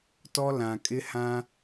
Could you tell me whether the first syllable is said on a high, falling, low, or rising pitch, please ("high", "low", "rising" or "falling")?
high